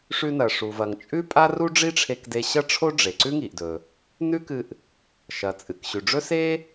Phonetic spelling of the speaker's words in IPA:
ʂʉ˧nɐ˩ ʂu˩vɐ˩ŋ t͡ʃʼʉ˥pʼa˥ru˥ ɖ͡ʐi˥ʈ͡ʂʰe˧kde˧ ɕɐ˥ʈ͡ʂʰo˥ɖ͡ʐe˩ ǀʉ˥ŋi˩ʔdɵ˩ | nʉ˥kɨ˧ʔ | ʃɐ˩t͡sʼɨ˩k ɕʉ˩ɖ͡ʐɵ˥ se˥

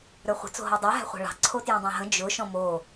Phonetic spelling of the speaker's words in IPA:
ɾə˞χʷə̤ t͡so̤ɦɔdˤə˞ ɦæ̤χʷæ̤ɭɑ̤ ǀʰotjũdˤæ̃ɦə̃ d͡ʒʊ ʃɔ̃mo

